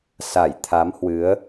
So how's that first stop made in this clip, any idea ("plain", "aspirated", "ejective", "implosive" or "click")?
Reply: aspirated